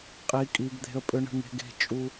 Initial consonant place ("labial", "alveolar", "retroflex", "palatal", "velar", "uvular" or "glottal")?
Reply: uvular